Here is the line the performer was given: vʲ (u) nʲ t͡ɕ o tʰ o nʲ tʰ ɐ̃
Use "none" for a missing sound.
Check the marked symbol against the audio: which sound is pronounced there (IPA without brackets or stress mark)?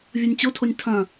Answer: o